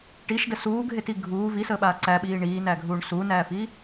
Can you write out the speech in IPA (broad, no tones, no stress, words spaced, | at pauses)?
ʈiʃdə suːɡʱeti ɡʱuː visəːɓaː ǀæɓiː ɳiːnæɡʱuːɳ sunæːfiː